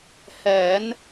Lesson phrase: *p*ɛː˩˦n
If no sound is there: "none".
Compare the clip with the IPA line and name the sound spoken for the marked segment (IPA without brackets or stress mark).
h